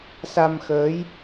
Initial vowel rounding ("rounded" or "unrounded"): unrounded